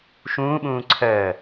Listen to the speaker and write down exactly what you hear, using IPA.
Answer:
ʃ ũː ɓ ũː ǀʰ ɜ

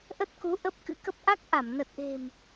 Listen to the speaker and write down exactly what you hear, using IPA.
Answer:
ʔ ə˦˥ t̚ k u˨˦ ʔ ə˦˥ p̚ k ɨ̰˧˥ k ə˦˥ p̚ ʔ a˦˥ k̚ ʔ a˧˩ m n ə˨˩ t̚ ʔ e̤˨˩ m

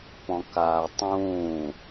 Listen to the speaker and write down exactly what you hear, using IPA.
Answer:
p ɔ̃ k aː tˤ ũː

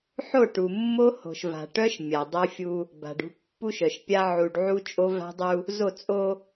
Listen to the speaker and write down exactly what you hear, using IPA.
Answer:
ħ o˦˨ ʈ u˨ mː o˦ h o̤˨ ʃ v a̤˨ ʈ œ˦ ʃ mʲ a˨ dˤ œ˦ fʲ u˦ | b a̤˨ ɖ ṳ˦ pː u˦ ʃ œ˨ ʃ pʲ a˦ ʕ u˨ ɖ ʕ u˦ t͡ʃʼ o˦ v a̤˦ dˤ u˦ | z o˦˨ t͡sʼ o˦

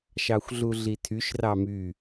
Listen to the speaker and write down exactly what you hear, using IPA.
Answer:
ʃ ɑ xʷ ɮ u ɮ i tʰ y ʃ r ɑ m y

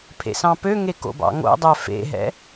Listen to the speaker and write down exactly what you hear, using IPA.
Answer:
pʰ ḛ s ɑ̃ p ø ŋ e k o̰ b ɑ̰ ŋ o̰ dˤ œ f ḛ ɦ ɛ̰

